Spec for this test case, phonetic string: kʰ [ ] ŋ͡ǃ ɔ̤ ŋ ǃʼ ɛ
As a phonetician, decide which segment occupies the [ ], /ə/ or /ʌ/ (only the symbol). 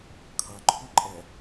ʌ